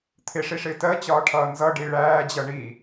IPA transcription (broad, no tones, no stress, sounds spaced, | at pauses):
t̪ʰ ɪ ʂ i ʂ ɪː t ɜ t͡ɕ ɒː ʈʰ ʌː n z ʌ ɖ i ɭ æː d͡ʑ ʌ ɳ i